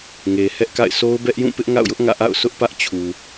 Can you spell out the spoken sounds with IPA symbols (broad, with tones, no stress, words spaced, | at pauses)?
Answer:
ŋe˨hɛ˦ʔka̰˦˨ɪ̯ so˦ʊ̯bɛ˦ʔjũ˦˨ pɪ˦ʔŋa̰˦˨ʊ̯jʊ˦ʔ ŋä̰˦˨ʔa̰˦˨ʊ̯ sʊ˦ʔpä˦ʔt͡ɕʰu˨